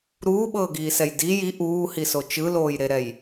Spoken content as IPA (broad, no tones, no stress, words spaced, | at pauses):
ɾuːɓɤːɡiːsɛj di ji ʔuːhiso t͡ʃɯloːjɾeɾɛj